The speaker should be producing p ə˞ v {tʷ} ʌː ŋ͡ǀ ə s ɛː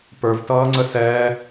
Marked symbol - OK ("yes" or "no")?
no